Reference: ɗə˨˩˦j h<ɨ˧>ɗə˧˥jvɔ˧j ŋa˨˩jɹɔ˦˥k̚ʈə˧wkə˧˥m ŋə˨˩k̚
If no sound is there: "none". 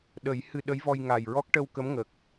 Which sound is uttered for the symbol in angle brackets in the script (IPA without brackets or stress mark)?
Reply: ɨ˧